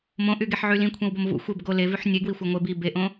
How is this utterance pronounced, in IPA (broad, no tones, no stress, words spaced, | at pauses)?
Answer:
mõʔyɡeħʕy lĩkʷʰẽwbom vṵ xʷeb ɡo levyħ nʲeɡwixʷæ ŋʷe bi beʔõ